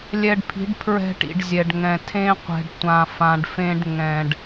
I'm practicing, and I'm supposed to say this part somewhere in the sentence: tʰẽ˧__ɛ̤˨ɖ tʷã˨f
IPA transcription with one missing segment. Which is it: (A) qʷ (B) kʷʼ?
A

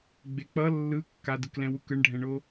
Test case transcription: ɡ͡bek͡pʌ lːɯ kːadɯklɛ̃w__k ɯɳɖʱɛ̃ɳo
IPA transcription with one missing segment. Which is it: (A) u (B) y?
A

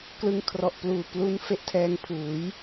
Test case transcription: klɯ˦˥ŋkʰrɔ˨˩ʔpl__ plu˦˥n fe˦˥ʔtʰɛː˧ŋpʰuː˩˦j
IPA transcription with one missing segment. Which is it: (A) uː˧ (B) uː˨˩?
B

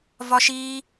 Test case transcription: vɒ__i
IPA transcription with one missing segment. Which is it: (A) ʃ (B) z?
A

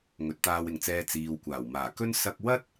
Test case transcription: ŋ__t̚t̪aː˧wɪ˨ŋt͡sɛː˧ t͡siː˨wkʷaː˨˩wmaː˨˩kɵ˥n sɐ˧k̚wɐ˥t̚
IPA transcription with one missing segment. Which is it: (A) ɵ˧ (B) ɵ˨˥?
B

